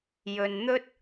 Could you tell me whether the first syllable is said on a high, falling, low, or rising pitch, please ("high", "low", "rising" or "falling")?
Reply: low